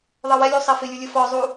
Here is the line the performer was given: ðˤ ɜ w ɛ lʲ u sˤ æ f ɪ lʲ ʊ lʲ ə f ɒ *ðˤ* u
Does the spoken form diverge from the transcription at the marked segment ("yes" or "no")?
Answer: yes